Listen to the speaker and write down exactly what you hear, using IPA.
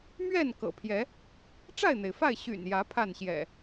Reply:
m ɥ ɛ˥˨ n k ɤ̰˨˩ pʰ j ɛ˨˦ | ʈ͡ʂ a˥˨ ɪ̯ n̪ e˩ ɪ̯ f a˥˨ ɪ̯ ɕ y̰˨˩ n j ä˨˦ pʰ a˥˨ n ɕ j ɛ̰˨˩

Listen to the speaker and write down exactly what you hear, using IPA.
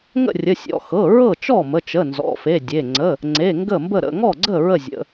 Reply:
ŋ ə̰˥˩ rʲ ə˩˧˩ sʲ ɔ̰˩˧˩ x ɤ˩˧˩ ɹ ɤ˥˩ t͡ʃ ɔ˥˩ m ə˩˧˩ t͡ʃ ə˩˧˩ n z ɔ̰˩˧˩ f e˩˧˩ dʲ e˩˧˩ ŋ͡ǀ ə˩˧˩ | ŋ͡ǀ e˩˧˩ ŋ ɡ ə˥˩ m b ə˥˩ ɾ ə̰˩˧˩ ŋ ɔ˥˩ ɡ͡ǀ ə˥˩ ɹ ə˥˩ zʲ ə̰˩˧˩

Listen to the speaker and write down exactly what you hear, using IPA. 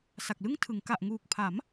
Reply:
s a˨˩ k̚ l ɯ˥˩ ŋ tʰ ɯ˩˦ ŋ k a˨˩ ʔ ŋ uː˨˩ k̚ pʰ a˩˦ m

